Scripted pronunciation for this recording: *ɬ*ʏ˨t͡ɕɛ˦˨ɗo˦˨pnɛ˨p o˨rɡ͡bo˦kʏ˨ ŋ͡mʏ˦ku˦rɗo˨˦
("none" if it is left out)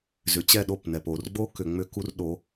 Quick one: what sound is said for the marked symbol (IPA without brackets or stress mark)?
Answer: z